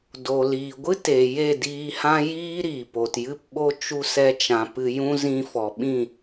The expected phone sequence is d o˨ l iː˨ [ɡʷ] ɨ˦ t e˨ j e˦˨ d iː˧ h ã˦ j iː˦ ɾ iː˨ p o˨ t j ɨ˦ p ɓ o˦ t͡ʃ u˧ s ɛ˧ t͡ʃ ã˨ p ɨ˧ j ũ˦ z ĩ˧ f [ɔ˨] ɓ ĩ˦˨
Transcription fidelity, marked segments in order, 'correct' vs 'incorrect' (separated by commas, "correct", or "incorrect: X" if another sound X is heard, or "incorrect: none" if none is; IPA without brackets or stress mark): correct, correct